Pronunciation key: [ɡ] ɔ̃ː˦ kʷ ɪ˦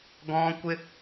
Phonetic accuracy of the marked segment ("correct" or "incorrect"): correct